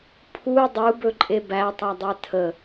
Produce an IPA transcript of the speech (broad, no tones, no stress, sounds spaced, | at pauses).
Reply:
pʰ u dˤ u b ɵ ǃʼ e b æ tˤ a dˤ ɛ tʰ ə